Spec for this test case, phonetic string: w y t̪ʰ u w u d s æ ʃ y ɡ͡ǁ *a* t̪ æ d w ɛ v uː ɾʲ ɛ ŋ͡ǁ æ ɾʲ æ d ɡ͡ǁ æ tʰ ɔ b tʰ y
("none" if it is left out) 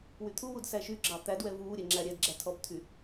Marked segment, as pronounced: ɑ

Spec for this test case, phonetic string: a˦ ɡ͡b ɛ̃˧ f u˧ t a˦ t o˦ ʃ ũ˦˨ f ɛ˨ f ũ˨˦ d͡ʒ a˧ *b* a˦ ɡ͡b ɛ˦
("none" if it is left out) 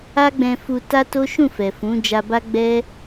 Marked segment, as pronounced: b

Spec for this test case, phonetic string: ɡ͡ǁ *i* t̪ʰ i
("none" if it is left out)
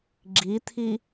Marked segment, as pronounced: i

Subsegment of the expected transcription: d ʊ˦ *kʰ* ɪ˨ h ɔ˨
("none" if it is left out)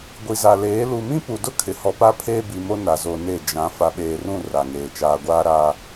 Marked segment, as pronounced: kʰ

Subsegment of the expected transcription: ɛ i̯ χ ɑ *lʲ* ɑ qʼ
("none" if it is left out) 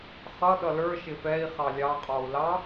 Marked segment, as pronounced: lʲ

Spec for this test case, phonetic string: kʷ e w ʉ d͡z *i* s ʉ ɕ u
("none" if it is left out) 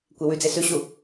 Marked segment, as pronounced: e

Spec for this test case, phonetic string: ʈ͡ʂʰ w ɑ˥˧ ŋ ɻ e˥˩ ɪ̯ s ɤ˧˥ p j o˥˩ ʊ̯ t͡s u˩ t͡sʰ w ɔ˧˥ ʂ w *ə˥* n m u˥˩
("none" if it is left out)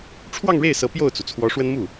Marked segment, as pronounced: ə˥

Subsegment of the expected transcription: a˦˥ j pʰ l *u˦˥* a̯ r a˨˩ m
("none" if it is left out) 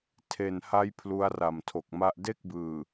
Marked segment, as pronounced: u˦˥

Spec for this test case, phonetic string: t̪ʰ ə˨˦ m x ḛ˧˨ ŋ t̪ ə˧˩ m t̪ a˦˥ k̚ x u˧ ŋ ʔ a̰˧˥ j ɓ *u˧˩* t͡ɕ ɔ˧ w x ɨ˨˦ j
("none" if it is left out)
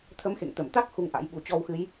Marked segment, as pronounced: u˧˩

